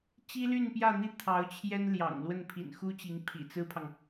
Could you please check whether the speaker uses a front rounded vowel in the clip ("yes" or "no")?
yes